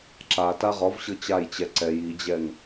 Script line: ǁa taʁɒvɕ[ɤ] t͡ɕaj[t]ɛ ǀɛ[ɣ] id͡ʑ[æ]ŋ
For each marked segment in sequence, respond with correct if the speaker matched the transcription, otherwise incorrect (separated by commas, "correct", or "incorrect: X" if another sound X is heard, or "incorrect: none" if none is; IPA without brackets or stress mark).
correct, incorrect: t͡ɕ, incorrect: j, incorrect: ɛ